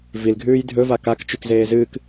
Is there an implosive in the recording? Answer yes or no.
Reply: no